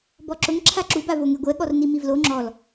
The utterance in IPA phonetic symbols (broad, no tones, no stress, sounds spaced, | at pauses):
b ɔ ǁ ʊ ŋ ǁʰ a ǁ u b a v o ŋ e ɡʷ ɛ ɠ ɔ r n i m i v l o ŋ͡ǁ ɔ l